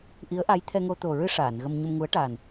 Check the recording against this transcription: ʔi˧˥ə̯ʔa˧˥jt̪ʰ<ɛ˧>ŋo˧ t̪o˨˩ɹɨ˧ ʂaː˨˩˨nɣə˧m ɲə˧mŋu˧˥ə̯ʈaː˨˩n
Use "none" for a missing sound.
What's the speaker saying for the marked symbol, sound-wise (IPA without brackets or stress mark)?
ɛ˧